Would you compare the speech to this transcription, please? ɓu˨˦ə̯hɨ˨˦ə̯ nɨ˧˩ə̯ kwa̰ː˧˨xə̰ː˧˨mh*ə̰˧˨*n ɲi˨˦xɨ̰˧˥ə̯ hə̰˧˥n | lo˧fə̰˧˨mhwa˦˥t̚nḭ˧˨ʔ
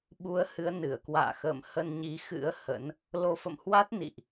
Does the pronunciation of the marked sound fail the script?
yes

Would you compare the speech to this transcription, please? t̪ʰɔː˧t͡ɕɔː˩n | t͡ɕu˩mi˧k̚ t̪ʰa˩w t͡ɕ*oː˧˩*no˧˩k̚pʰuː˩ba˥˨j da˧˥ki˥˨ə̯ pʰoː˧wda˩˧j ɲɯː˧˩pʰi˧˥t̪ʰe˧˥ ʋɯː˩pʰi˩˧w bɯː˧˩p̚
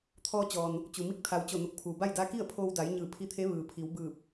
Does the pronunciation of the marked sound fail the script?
yes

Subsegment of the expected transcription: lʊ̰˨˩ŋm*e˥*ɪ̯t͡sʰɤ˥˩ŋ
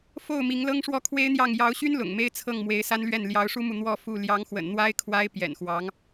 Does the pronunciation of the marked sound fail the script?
no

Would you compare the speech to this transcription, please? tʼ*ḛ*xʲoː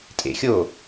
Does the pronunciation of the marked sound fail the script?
no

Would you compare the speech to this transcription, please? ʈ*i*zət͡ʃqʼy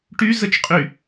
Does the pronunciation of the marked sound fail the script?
yes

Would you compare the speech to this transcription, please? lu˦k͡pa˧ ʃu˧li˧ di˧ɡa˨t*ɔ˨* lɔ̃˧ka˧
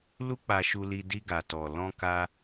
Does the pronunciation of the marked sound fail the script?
no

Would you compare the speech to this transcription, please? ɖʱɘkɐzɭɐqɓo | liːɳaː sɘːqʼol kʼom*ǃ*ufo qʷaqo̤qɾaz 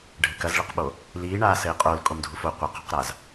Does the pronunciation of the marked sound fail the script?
yes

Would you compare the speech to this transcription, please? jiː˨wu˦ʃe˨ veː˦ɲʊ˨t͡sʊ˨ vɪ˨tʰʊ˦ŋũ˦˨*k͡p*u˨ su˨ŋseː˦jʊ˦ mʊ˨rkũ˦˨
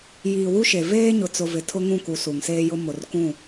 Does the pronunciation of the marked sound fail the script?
yes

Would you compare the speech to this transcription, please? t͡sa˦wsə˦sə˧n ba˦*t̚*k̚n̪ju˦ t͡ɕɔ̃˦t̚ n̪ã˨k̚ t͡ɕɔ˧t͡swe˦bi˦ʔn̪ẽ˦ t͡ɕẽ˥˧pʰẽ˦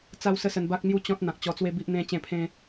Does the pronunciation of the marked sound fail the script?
yes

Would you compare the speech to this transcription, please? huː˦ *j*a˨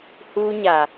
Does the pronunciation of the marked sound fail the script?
yes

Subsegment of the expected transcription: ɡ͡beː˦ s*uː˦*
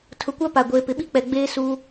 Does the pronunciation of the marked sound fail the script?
no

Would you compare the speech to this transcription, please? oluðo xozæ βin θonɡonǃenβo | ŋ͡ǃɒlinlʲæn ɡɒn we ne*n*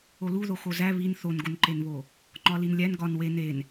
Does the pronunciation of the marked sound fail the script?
no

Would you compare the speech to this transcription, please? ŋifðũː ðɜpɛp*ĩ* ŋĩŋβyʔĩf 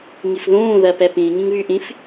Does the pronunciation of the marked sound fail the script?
no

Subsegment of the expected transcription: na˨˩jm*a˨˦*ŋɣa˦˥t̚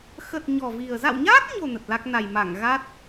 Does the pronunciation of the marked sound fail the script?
yes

